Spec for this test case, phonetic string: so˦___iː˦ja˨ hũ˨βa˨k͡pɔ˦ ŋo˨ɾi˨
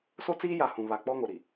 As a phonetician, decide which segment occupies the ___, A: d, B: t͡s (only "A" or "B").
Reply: B